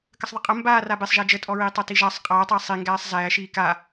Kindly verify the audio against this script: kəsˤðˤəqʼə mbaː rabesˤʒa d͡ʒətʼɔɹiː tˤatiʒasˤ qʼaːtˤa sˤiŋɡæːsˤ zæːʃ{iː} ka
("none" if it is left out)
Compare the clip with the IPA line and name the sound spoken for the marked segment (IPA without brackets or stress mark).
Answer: iː